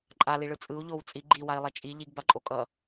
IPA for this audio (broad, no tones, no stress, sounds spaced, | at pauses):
ǃʼ a l i ɭ ɯ t͡sʼ ɯ u̯ ʎ o w t͡sʼ i ɡ͡ǃ i w a i̯ lˠ ɛ t͡ʃʼ i ʎ i ɡ b a ǃʼ o kʼ ʌ